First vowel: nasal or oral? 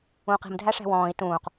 nasal